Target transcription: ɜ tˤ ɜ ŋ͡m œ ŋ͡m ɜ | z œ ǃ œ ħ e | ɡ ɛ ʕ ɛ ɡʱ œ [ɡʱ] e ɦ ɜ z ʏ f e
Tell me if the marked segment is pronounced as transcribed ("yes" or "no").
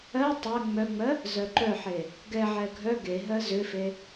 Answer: no